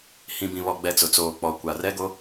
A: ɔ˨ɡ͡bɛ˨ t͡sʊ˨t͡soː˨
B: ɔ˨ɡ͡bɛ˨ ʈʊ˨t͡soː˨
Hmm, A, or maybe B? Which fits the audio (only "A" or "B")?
A